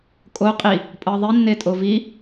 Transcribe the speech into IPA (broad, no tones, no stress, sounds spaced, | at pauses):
kʼ o qʼ i | pʼ ɤ ðˤ i nː e tʼ o v i